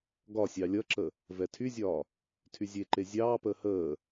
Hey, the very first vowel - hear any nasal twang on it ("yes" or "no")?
no